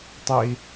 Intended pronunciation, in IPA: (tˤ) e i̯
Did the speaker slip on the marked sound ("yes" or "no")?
no